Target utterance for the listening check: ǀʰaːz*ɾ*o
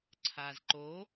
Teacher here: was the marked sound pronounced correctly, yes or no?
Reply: no